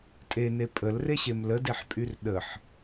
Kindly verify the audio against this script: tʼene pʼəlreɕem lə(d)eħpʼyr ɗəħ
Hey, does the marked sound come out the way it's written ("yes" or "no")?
yes